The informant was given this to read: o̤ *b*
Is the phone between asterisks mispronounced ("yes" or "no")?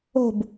no